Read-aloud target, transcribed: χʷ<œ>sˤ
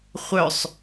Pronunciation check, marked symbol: correct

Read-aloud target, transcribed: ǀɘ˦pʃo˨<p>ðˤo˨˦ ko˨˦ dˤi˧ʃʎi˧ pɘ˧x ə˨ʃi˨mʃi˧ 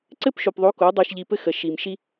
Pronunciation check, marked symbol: correct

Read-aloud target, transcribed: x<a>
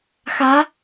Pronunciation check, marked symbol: correct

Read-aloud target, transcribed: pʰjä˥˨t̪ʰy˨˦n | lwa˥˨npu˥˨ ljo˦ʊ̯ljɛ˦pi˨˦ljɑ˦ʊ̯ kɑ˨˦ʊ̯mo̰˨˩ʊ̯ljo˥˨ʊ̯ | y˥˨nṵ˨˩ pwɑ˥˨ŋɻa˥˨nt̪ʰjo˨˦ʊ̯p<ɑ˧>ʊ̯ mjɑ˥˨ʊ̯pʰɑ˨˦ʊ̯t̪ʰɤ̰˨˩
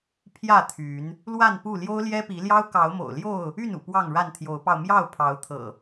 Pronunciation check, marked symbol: correct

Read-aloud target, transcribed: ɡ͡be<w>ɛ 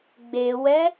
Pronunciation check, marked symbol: correct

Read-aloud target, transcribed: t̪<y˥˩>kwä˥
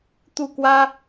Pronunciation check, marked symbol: incorrect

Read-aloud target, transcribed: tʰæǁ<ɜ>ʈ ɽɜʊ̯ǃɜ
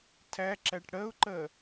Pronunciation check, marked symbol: incorrect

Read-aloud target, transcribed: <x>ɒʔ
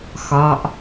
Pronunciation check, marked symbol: correct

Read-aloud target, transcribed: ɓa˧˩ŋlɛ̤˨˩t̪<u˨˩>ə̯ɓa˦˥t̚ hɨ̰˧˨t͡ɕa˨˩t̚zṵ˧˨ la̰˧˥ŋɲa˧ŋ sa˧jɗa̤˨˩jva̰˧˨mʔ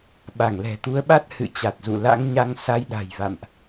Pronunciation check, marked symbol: incorrect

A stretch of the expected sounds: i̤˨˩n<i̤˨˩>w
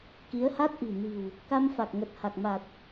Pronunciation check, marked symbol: correct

